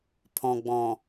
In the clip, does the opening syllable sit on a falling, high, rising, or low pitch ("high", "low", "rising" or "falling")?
low